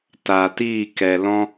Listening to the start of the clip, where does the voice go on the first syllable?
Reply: low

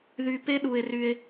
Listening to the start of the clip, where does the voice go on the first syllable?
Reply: low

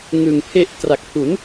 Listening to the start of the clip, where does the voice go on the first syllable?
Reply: low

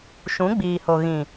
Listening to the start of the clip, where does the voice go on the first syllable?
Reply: rising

